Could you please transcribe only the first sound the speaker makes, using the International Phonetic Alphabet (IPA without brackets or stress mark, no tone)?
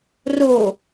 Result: r